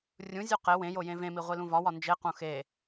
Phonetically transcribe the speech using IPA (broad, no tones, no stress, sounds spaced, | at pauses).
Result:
rʲ ũ zʲ u q e w ẽ j o j ẽ v ẽ m i ʁʷ i l ũ v ɒ w ɒ n d͡ʒ e q ũ x e